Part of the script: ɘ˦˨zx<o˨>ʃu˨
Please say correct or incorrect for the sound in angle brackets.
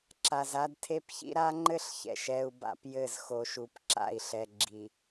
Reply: correct